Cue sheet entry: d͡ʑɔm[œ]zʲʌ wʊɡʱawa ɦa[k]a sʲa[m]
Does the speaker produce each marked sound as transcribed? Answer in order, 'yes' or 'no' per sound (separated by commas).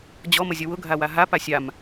no, no, yes